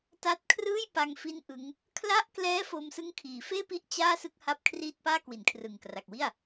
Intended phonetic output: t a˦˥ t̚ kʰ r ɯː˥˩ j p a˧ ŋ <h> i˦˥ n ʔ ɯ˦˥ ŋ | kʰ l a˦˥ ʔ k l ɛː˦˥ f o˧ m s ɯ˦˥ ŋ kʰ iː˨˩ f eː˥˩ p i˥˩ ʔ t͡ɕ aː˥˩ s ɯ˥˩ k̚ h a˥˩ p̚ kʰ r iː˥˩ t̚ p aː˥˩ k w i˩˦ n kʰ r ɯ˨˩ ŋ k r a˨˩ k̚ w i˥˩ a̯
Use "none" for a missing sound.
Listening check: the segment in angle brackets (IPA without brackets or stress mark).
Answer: f